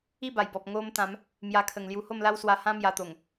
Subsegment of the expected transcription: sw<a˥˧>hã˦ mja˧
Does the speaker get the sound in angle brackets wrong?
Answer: yes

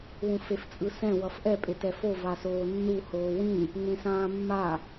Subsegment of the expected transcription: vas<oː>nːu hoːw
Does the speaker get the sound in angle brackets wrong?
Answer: no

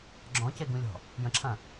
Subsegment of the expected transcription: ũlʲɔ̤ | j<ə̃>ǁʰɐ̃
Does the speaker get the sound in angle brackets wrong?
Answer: no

